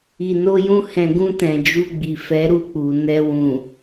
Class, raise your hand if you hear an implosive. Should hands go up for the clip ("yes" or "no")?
no